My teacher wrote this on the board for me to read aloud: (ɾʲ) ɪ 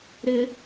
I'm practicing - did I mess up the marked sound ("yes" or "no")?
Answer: yes